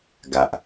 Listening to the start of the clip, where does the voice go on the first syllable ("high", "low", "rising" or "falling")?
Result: low